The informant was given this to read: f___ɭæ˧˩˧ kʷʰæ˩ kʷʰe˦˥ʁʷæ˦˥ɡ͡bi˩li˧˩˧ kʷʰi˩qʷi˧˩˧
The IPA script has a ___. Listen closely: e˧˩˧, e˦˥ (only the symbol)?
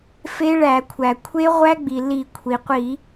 e˦˥